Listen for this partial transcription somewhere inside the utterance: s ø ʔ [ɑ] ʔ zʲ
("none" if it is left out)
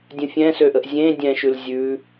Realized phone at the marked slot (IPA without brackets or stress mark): ə